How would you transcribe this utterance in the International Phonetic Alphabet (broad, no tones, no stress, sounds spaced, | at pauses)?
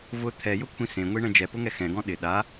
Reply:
v ʊ t̪ʰ ɛ j ʊ kʷʰ ĩ s ẽ ŋʷ i ɳ ɛ̃ d͡ʒ ɛ p ʊ ŋ ɛ x ɛ̃ ɡ ɔ̃ ɗ ɪ ɗ a